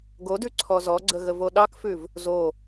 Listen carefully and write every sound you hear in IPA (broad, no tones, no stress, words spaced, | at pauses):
ɡodʉ ǀʰɔzɔɡ͡ǀə ɣəvoɗɑkfʉv | zo